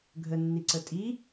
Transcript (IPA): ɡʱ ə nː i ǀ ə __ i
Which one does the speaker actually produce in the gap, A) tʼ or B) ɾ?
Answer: A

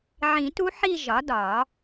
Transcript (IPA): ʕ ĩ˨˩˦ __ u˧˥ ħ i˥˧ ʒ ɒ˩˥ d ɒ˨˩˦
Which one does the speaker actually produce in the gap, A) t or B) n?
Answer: A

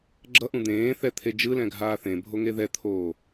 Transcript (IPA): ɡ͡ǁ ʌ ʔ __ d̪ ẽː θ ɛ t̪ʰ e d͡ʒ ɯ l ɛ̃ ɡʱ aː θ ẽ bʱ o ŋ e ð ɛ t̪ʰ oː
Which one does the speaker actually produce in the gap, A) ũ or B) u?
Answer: A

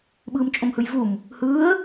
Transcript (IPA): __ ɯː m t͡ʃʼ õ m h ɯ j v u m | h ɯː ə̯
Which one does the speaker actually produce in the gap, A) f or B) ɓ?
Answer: B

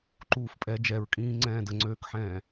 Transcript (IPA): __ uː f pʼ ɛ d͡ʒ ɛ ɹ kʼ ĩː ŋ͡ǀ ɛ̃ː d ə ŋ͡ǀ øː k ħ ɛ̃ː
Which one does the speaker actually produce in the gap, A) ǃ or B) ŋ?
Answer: A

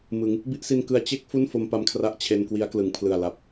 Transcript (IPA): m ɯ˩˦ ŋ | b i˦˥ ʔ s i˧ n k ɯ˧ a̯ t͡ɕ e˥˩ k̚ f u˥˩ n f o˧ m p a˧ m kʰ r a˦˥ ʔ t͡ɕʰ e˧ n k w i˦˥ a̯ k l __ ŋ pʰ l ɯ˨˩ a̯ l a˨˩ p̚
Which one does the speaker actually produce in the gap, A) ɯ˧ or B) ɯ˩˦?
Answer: B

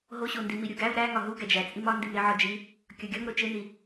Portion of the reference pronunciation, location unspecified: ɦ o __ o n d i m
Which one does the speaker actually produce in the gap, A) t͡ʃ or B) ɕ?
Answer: B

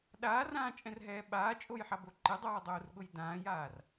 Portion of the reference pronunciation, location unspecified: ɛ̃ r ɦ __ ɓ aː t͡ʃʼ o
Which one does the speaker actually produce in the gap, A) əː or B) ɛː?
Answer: B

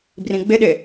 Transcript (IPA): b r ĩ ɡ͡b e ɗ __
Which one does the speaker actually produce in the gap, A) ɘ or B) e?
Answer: B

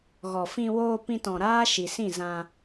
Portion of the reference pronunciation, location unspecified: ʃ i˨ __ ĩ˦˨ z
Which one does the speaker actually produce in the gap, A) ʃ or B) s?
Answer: B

